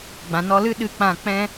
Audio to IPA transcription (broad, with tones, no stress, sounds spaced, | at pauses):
ɡ͡b ã˨ n ɔ˧ l ɨ˦ ɗ ɨ˧ k͡p ã˦˨ k͡p ɛ̃˦